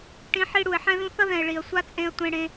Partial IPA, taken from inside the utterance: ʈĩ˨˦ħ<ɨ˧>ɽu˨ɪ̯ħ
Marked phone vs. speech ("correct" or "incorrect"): incorrect